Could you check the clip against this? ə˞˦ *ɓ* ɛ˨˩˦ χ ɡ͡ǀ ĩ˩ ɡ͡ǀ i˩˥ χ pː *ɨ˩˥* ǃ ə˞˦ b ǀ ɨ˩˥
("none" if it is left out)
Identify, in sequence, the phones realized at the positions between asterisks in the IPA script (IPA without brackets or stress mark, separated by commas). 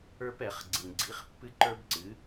p, ɨ˦